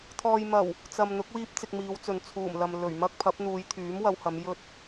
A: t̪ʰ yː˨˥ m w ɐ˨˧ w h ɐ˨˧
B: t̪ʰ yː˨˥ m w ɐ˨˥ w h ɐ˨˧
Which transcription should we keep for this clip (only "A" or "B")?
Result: A